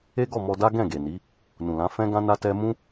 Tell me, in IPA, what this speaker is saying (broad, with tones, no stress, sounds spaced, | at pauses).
e˦ ɡ ɔ˦˨ m ɔ˧ d a˦ ɡ ɛ̃˦˨ ɡ e˨ n i˨˦ | n ũ˨ l ã˨˦ f ɛ̃˦ ɡ ã˦ n a˦ t ɛ˦ m ũ˦